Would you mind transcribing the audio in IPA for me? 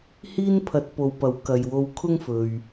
h iː˥ n pʰ ɐ˨˥ t̚ p o˨ w p ɐ˨˥ w k ɐ˨ j w o˧ w kʰ ʊ˥ ŋ f ɵ˨ ɥ

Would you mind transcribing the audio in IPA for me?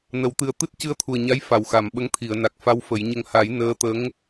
n ə˨˩˨ w t̪ ɨ˨˩ ə̯ t̪ ɨ˦˥ t̚ c ɨ˧ ə̯ t̪ʰ u˨˩ ə̯ ɲ a˧˥ j f a˨˩ w x a˨˩˨ m ɓ ə˧˥ ŋ t̪ʰ i˨˩˨ ə̯ n a˨˩ k̚ f a˧˥ w f ə˨˩˦ j ɲ ə˧ ŋ h a˨˩˦ j n əː˧˥ t̪ ə˧˥ ŋ

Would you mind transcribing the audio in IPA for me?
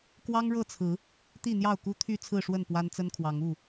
k w ɑ˦ ŋ ɻ ɤ˥˨ t͡sʰ ɹ̩˨˦ | t̪ i˥˨ n̪ j ɑ˥˨ ʊ̯ k u˦ t̪ʰ y˥˨ t͡sʰ ɹ̩˥˨ ʂ w ə˥˨ n p w a˦ n t͡s ə˦ n kʰ w ɑ˨˦ ŋ u˥˨

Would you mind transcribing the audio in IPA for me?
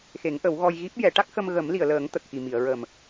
x e˨˩˦ ŋ ʔ ə˨˩˦ w ɣ ɔ˧ j ɣ i˦˥ p̚ j ɛ˨˩˦ ʈ a˦˥ k̚ x ə˧ m ɣ ə˨˩˦ m l i˨˩˨ ə̯ l əː˨˩˦ ŋ t̪ ə˨˩ k̚ x i˨˩ m i˨˩˨ ə̯ ɹ ə˨˩ m

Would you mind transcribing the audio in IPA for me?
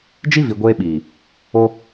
d͡ʒ i˦ v i˨ ɡʷ eː˧ ɓ iː˨ | o˧

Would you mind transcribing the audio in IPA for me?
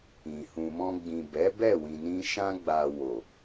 ĩ˨ h ũ˨ m ɔ̃˧ ɡ͡b ĩ˨ b ɛ˨˦ b ɛ˦˨ w ĩ˨ n ĩ˧ ʃ ã˧ ɡ͡b a˨ w o˨

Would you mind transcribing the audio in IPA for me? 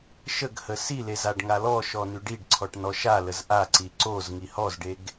ʃ ə ɡ h ə s i l e z a ɖ ŋ a l ɔ ʃ ɔ n y ɖ i ɖ ǀʰ ɔ ʈ n ɔ ʃ a l ə z ʔ a ǀ i ǀ o z ŋ i h ɔ z ɖ e ɡ

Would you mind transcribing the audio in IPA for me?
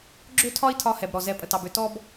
ɡ͡ǁ ø˥ tʰ ɒ˥ i̯ tʰ ɒ˧ h ɛ˩ b ɾ ɔ˩ z ɛ˧ pʼ ə˩ t ɑ˩ b ø˧ t ɔ˥ b

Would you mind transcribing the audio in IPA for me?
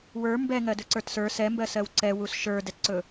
w ə˞ m b ɛ ŋ ɜ d ɵ ǀ ə˞ t s ə˞ s ɛ m b ɜ s ɜ w ǀ ɛ w u s ʃ ə˞ d ɛ t ǀ ɵ

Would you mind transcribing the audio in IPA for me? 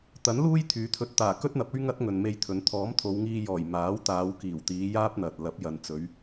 t̪ ɐ˨˥ n l uː˥ j t̪ʰ yː˨˧ t̪ʰ ɵ˧ t̚ t̪ aː˨˩ k ɵ˥ t̚ n̪ ɐ˨˥ p̚ ɵ˥ ɥ ŋ ɐ˥ t̚ ŋ ɵ˨ n m e˧ j t̪ʰ ɵ˨˧ n t̪ʰ ɔː˨˥ m t̪ʰ o˨˧ w ŋ iː˧ j ɔː˨˩ j m aː˨˥ w t̪ aː˨˧ w k iː˨˩ w t̪ iː˨˧ j aː˥ p̚ n̪ ɐ˨ t̚ l ɐ˨˥ p̚ j ɐ˨ n t͡s ɵ˨˧ ɥ

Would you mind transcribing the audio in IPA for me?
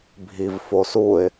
bʱ i v f o s u ɪ̯

